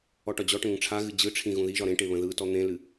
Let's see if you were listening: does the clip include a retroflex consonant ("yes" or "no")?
yes